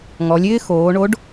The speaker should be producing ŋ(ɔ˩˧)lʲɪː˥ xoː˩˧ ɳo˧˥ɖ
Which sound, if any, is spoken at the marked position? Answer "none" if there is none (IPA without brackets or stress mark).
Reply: ɔ˩˧